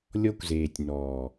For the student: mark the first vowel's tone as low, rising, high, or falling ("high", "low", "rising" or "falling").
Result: high